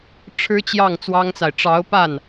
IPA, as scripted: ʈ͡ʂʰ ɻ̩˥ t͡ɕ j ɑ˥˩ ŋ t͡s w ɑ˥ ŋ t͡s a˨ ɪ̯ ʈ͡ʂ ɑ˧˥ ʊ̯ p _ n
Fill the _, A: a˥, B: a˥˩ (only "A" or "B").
B